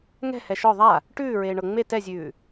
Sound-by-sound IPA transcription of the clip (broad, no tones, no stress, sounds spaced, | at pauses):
ŋ ɛ̤ h ɛ ʃ ɔ ðˤ a | ʈ ʉː ɹ eː ɳ ɤ ŋ͡m e t ɛ zʲ ʉː